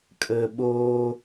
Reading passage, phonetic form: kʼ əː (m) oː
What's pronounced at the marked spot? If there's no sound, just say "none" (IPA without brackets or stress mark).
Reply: ɓ